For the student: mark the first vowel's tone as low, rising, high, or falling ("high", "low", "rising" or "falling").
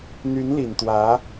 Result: rising